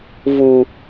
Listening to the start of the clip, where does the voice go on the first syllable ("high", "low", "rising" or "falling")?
low